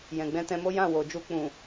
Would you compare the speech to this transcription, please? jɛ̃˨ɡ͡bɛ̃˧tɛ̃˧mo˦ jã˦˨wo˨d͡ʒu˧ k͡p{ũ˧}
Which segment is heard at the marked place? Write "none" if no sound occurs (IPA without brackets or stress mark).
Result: ũ˨